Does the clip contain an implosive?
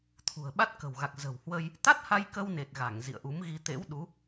yes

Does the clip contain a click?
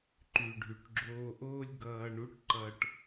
yes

